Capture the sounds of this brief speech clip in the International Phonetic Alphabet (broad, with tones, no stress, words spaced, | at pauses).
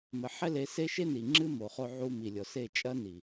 mɘ˨ħɛ˦le˨˦se˦ ʃe˦ni˨ ŋ͡ǁɨ˦ mo˨χo˧ʕu˧ mi˨lʲɔ˨ se˦˨t͡ʃʼɐ˦ ni˨